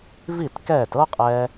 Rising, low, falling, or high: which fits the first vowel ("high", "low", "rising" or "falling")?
falling